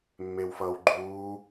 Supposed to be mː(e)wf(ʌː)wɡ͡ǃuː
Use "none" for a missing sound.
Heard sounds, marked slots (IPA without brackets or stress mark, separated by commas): e, ʌː